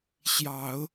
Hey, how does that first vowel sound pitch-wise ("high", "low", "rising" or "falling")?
low